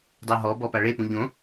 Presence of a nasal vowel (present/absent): present